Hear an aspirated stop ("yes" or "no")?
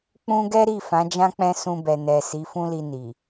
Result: no